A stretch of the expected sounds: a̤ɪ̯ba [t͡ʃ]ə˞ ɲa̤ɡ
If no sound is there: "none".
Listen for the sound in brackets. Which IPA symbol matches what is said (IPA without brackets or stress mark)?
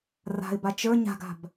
t͡ʃ